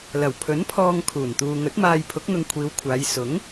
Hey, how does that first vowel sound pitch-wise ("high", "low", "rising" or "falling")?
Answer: low